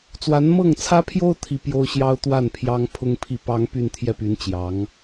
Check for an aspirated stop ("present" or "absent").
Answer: present